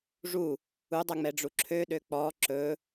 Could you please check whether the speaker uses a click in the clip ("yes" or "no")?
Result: yes